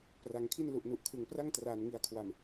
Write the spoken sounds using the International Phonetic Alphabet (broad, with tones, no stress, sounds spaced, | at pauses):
p r a˩˦ ŋ kʰ i˥˩ n l u˨˩ ʔ n u˨˩ ʔ kʰ ɯ˨˩ ŋ p r a˥˩ ŋ t r aː˨˩ n ŋ i˨˩ a̯ kʰ w a˨˩ m